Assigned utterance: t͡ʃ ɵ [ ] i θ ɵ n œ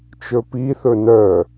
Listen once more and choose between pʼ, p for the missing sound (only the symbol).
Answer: p